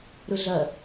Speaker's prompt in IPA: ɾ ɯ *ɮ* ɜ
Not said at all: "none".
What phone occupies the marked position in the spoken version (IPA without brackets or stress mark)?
ɮ